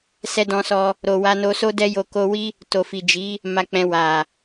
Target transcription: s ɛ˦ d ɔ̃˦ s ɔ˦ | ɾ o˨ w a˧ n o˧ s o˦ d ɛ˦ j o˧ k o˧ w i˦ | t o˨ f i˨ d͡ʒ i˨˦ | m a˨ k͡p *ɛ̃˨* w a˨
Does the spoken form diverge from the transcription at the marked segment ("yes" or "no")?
no